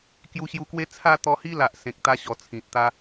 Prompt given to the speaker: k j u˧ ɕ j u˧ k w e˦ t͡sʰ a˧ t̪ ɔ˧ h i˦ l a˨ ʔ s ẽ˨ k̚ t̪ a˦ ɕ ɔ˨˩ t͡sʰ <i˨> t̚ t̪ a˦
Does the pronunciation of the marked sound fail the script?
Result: yes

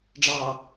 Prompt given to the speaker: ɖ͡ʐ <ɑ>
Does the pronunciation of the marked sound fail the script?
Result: no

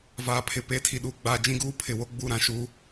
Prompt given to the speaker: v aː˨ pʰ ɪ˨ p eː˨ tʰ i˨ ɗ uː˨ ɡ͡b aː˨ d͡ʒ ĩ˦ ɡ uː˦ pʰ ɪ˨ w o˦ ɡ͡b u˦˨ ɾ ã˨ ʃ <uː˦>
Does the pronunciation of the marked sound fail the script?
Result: no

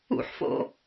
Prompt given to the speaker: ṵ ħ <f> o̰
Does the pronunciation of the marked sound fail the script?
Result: no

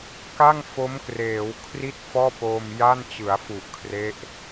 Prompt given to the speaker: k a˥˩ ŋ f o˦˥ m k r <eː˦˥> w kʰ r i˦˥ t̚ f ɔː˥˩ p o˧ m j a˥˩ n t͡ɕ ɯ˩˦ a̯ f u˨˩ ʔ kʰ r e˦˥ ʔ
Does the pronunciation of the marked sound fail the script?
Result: yes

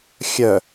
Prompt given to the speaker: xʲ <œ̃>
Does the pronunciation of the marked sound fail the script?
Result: yes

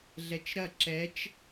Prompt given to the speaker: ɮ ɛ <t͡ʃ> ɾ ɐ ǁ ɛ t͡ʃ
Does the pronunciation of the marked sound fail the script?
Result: no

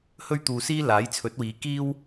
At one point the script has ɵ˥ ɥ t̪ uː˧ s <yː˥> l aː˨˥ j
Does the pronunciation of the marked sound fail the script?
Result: yes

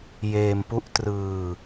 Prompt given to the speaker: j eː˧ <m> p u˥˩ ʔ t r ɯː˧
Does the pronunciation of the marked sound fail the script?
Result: no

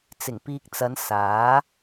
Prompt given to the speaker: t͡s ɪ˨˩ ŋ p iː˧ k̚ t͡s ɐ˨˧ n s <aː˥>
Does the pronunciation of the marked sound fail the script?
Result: yes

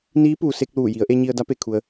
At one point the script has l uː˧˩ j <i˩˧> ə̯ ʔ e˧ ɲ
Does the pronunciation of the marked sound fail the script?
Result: no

